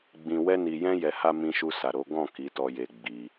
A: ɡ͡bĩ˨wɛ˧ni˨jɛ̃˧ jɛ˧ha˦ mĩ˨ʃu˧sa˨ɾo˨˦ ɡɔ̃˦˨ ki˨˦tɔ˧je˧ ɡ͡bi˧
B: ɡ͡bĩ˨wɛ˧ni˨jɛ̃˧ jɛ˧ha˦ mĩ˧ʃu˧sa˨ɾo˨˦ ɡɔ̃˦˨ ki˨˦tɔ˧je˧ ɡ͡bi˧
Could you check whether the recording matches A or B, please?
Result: B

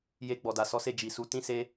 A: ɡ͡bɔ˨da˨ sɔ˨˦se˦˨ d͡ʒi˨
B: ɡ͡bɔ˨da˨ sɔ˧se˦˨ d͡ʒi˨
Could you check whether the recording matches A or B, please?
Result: A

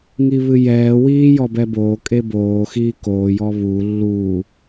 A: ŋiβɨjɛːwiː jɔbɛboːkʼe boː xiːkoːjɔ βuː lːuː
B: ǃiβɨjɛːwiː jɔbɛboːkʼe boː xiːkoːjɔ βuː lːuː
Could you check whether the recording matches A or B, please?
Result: A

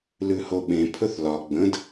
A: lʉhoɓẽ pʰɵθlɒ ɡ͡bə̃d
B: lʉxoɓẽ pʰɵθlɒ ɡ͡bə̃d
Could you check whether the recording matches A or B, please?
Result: A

